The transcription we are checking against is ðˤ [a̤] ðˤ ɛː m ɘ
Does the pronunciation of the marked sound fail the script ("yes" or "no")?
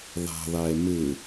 no